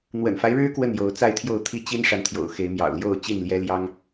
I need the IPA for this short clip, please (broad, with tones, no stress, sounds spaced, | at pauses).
n̪ w ə̰˨˩ n f a˦ ɪ̯ ɻ ɻ̩˦ k w ə˥˨ n j o˨˦ ʊ̯ t͡s a˥˨ ɪ̯ t̪ʰ j o˥˨ ʊ̯ t̪ʰ i˥˨ t͡ɕ i˦ n ʂ a˨ n t̪ʰ j o̰˨˩ ʊ̯ x e˨˦ ɪ̯ m j ɑ̰˨˩ ʊ̯ l j o˥˨ ʊ̯ t͡ɕ i˥˨ n l j ɛ˦ l j ɑ˦ ŋ